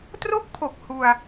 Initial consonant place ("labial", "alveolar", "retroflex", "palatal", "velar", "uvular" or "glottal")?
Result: alveolar